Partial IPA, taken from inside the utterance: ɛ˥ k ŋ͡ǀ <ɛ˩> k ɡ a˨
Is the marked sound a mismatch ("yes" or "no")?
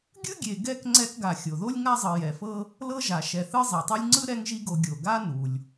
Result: yes